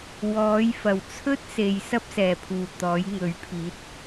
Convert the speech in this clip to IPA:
w ɔː˨˥ j f ɐ˨˩ w t͡sʰ ɵ˥ t̚ s e˨ j s ɐ˥ p̚ s ɛː˨˩ pʰ uː˨˩ t̪ ɔː˨˥ j ŋ ɵ˨˥ ɥ pʰ iː˨˥ t̚

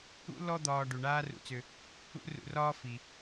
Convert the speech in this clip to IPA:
ṵ˥ l ɔ˦ d̪ ɒː˨ ɖ u˩ ɳ aː˦ r ṵ˨ t͡s ʏ˨ | ṵ˥ r ṵ˨ r ɒː˦ f i˩

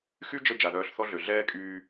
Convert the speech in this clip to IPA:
x y˦ d͡ʒ ə˧ d͡ʒ a˨ ð œː˧ ɬ θ ɔ˦ ɮ ø˨ ɮ ɛː˦ kʼ yː˧

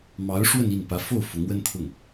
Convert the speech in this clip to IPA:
m ɑ˧˥ ʊ̯ ʂ w ə˥˧ n i˥˩ n p ä˧˥ f o˥˩ ʊ̯ f ʊ˧˥ ŋ w ə˥ n t̪ʰ ʊ˥˩ ŋ

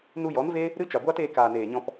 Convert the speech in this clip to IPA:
n u˧ j ɔ˨˦ n v eː˦ | ɾ ɨ˦ t͡ʃ a˨ ɡʷ aː˦ t eː˧ k aː˨ n eː˨ ɲ ɔ̃˧ p

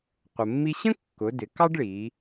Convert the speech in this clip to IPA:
qʷ ə˩ mː i˧ ɕ ə̃˥ kː ʊ˩˧ d ɪ˩˧ k ɑ˥ ɖ ɭ i˩˧

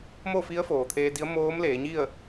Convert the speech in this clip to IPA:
m o˥˨ f i˧˥ ə̯ f oː˩ t̪ʰ eː˧ d i˧˥ ə̯ m oː˧˥ m l eː˩˧ ɲ i˥˨ ə̯

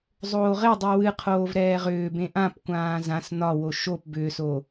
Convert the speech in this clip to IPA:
zˤ oː ʁ e dˤ i w ɨ qʰ oː v ɾ ɛː ʁ ʏː b ẽ ʔ ã p kʷ ãː z ã s n ɒ w o ʃ o p b ʏː s o

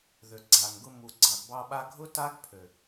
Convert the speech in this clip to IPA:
ð ø˨ ɡ͡ǀ a˨ ŋ ɡ ʊ˧ m u˨ ɡ͡ǀ ɑ˨ ɡ b ɑ˧ ɓ a˧ ɡʱ ʊ˦ t a˦ ɡ pʰ ø˨

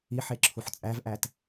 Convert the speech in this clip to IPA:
i ħ e ǁʰ u ħ t͡sʼ æ v ʔ æ t

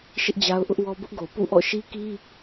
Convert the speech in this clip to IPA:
ʃ ɪ˦ ʔ d͡ʑ a˦ ʊ̯ ʔ ʊ˦ ʔ w ɔ˦ b ʊ˦ ʔ ɡ o˨ p ṵ˦˨ ʔ ɔ̰˦˨ ʃ i˦ k i˦

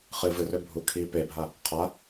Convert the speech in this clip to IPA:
χ ɨ v ɨ r ø bʱ u kʰ i p e bʱ a | qʰ a

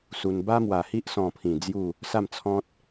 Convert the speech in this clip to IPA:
s u˧ n b a˦ m w a˨˩ h i˦ ʔ s ɔ̃˨˩ pʰ ĩ˨˩ d͡z j u˥˧ | s a˥˧ m t͡sʰ ɔ̃˦ t̚

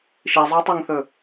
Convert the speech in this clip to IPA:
ʃ i zˤ ɵː tˤ a ŋ θ ɵ

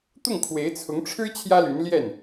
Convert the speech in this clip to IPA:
t̪ ʊ˥˩ ŋ kʰ w e˧˥ ɪ̯ t͡sʰ ʊ˧˥ ŋ ʈ͡ʂʰ ɻ̩˥ t͡ɕʰ j ä˥ l y˧˥ n l j ɛ˥˩ n

